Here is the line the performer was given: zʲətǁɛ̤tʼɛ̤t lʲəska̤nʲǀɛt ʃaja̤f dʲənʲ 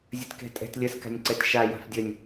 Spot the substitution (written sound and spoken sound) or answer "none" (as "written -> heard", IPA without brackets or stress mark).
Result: ǁ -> k